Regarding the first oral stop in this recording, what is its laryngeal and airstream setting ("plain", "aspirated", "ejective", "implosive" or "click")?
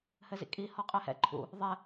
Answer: ejective